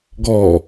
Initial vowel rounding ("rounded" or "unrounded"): rounded